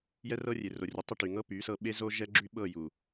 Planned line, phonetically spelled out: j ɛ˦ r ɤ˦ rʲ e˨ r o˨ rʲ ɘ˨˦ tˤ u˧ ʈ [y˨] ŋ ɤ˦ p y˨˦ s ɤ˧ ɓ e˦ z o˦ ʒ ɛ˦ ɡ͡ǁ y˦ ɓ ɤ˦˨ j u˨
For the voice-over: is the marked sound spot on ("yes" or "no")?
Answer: yes